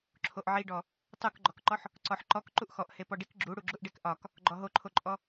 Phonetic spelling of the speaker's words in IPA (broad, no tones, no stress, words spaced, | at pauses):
ǁʰoʔʕiɖɔ | tˤukɡ͡ǃɔkǃɔħ | ǀɔħǃɔk ǃuʔxɔʔhe pɔɖik ɡ͡ǁu ɽuɡ͡ǁuʔɖekʔɒk | ɡ͡ǃɔɦoǃʰoǃʼɔ